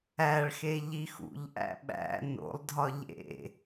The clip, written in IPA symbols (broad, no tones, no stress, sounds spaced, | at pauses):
æ ɭ x e ʎ i x ṵ ʎ ʔ æ̰ ɓ æ̰ n o̰ lˠ dʱ ɒ ʎ ḛ